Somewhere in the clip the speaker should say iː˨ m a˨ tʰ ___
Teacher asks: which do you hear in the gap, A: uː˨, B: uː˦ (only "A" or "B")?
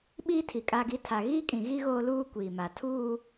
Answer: B